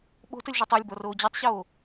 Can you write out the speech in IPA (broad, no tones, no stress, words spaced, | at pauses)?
ɓo̤təlʲʒɒtˤ ɤlʲbɔroː d͡ʑotˤɕoː